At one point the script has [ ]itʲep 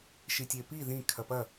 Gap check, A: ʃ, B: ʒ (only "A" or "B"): A